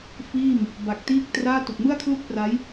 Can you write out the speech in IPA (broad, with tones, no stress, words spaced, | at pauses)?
fiː˥˩m | ba˨˩k̚tiː˥˩k̚traː˥˩ tu˨˩k̚mɯ˥˩a̯kʰlu˥˩k̚pra˦˥j